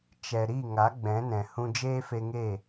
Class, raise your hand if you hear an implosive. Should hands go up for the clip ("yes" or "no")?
no